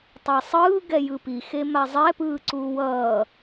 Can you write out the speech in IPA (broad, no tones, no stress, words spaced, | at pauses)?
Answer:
tˤɛsˤɯː ɡɛjɯpi xemazˤɛ pɯːǀuːwʌː